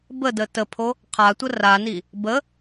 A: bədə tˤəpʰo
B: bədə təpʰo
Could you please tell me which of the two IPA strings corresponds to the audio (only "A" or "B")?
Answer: B